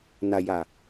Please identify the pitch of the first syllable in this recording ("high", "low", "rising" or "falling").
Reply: low